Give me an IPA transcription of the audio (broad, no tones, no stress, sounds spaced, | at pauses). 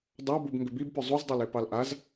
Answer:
dˤ ɑ b u b ŋ ɡ ʏ b i b p ʏ zˤ u z dˤ ɛ l e p ɑ l ʔ a z